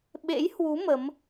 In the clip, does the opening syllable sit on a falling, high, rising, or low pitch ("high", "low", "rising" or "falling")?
rising